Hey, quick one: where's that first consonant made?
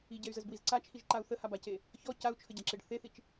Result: palate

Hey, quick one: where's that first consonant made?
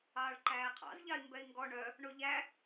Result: retroflex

